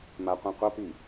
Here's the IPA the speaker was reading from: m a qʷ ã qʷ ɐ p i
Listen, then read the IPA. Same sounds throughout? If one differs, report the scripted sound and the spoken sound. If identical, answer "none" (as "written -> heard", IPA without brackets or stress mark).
none